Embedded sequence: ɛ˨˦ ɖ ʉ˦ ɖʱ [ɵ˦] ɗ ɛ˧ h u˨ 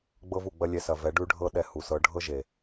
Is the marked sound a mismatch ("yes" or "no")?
yes